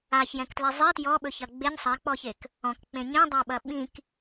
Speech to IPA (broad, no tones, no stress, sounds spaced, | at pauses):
a ç j ɛ̃ k t l ɛ zˤ e t j ɔ ɓ ɵ ç ɐ ɡ͡b e ɲ sˤ a k͡p ɔ ç e k | ɔ̃ k k͡p ẽ ɲ ĩ dˤ a ɓ ɐ ɓ ĩ k